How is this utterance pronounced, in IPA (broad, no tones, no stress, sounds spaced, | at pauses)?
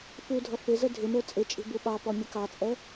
f u dʱ ʌ f ɪ z ə dʱ ɪ m ə˞ t͡sʼ ɪ t͡ʃʼ i̤ b u ɓ ɑ p ɔ mʲ ə k ɑ t͡sʼ ɛ